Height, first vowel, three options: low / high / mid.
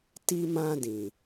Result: high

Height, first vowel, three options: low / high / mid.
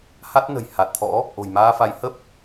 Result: low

